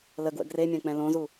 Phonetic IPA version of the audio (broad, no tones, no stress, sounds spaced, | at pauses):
l ə ɡ w ə̰ ɡ r e mʲ ã k͡p ɛ̃ l õ z u